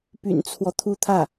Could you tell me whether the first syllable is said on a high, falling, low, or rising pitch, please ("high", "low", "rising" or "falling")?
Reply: low